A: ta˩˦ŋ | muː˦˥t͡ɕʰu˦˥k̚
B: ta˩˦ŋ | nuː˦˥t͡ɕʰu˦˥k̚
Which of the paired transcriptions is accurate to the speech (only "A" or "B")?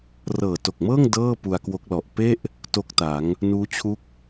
B